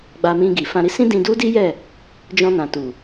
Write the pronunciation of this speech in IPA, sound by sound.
ɡ͡b a˧ m ĩ˧ ɡ i˨ f ã˧ ɾ i˦ s ĩ˦ d ĩ˧ d u˦ d i˦ j ɛ˦˨ | d͡ʒ ɔ̃˧ n ã˨ t u˨

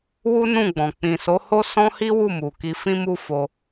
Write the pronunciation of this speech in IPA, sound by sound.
w u˦ n ũ˦˨ ɡ͡b ɔ̃˨ k͡p ĩ˨ s o˨˦ h o˦ s ɔ̃˦ h i˦ w u˦˨ m u˨ k i˧ f ĩ˦ m u˦ f o˧

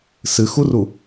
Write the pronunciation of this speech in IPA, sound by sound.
s ɨ x u r u

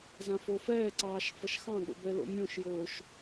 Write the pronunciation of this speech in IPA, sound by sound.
z ã f o f ɛː ǀ ɑː ʃ f ʌ ʃ x ɑ̃ ɠ o̰ b ɛ l o̰ mʲ õ ʃ j oː ʃ

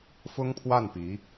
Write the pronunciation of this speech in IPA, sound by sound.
f ʊ˥ ŋ pʰ w a˥˩ n p i˧˥

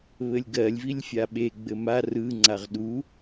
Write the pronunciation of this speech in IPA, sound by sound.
β ɘ lʲ ɡ ɜ lʲ v i lʲ fʲ a ɓ e ɡ͡b ɘ m a r ɯ ŋ͡ǀ a ʁ ɗ u

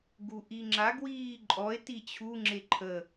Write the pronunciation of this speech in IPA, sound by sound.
ɡ u ʔ i ŋ͡ǁ a ɡ w iː ǃʼ ɔ e̯ t i t͡ɕʰ u ŋ͡ǁ e ǃʰ ə

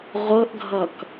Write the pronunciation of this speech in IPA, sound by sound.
ʁʷ ɤ ʔ ɡʱ ʌ k

